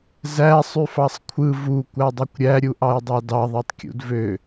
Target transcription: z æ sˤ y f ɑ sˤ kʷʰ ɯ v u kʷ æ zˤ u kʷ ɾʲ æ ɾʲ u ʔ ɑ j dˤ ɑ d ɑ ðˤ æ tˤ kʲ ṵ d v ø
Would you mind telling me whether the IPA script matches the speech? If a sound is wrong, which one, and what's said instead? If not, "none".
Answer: zˤ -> dˤ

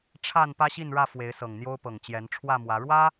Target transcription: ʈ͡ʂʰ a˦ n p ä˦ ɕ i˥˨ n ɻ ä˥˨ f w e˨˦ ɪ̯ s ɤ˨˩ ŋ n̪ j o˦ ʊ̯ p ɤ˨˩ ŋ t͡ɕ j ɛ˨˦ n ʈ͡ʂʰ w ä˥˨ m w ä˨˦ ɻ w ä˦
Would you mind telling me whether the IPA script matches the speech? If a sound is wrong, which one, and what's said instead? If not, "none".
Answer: a˦ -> a˥˨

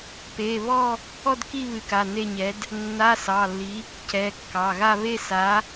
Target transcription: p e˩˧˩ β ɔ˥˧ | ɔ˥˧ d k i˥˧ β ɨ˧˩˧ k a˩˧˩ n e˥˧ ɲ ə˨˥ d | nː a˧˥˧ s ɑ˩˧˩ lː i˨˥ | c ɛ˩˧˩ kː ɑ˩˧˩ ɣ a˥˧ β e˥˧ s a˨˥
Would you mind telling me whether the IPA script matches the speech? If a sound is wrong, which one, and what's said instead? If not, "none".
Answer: ə˨˥ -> ɛ˨˥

